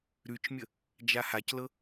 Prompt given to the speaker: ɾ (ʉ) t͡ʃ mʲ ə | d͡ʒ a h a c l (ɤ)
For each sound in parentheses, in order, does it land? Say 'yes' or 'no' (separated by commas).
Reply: yes, yes